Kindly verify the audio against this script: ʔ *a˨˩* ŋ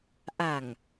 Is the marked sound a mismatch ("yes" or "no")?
no